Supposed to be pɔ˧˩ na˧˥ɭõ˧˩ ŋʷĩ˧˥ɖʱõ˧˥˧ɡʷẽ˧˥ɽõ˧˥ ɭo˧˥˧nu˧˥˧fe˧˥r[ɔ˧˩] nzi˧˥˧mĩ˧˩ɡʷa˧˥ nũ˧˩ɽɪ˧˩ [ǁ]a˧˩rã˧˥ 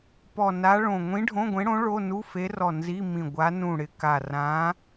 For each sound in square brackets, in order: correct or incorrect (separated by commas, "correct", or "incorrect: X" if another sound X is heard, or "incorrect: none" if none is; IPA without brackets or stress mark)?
correct, incorrect: k